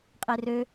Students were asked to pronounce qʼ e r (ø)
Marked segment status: correct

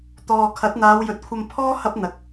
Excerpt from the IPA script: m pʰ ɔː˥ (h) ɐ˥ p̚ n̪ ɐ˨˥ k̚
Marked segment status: correct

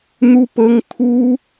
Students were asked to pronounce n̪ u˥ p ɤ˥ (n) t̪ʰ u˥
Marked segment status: incorrect: ŋ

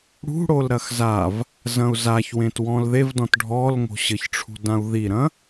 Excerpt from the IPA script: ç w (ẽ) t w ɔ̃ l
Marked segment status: correct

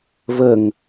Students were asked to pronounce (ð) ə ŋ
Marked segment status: incorrect: v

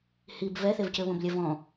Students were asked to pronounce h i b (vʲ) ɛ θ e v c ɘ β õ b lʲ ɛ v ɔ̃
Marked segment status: incorrect: v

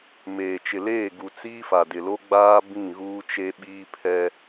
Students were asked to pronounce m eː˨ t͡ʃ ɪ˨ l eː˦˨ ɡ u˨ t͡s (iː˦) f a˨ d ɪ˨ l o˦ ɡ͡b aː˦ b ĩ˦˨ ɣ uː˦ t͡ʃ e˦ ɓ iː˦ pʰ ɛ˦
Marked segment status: correct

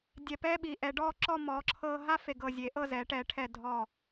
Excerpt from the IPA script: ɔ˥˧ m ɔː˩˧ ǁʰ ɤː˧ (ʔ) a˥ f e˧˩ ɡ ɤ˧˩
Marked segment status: incorrect: ɦ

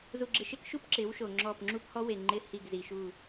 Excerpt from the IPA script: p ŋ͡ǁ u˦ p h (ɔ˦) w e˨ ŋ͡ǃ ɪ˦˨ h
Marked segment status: correct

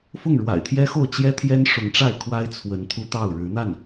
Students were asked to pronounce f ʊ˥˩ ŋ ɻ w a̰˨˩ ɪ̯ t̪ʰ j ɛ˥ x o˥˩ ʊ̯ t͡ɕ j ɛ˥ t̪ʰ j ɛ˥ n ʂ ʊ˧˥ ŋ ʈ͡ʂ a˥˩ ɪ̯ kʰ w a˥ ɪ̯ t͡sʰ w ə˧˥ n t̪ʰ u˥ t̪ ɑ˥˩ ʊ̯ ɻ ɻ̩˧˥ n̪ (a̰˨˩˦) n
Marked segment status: incorrect: a˥˩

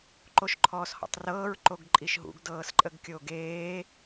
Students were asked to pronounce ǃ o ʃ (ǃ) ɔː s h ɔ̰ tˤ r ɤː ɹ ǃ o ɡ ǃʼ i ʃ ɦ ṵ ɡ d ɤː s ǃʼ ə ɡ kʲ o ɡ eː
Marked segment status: incorrect: ǃʰ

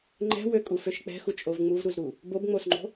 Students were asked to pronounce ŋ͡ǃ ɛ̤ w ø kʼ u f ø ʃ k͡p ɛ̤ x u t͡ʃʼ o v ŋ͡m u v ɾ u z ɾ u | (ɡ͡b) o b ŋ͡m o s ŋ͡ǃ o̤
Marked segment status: incorrect: b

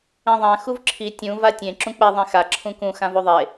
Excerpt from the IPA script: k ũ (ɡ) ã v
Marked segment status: incorrect: x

